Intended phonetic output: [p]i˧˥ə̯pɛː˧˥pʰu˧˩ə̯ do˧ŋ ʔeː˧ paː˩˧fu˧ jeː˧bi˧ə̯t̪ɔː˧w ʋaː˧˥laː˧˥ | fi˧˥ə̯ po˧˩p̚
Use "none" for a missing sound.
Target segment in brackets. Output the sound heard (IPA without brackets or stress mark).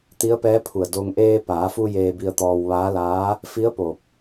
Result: t̪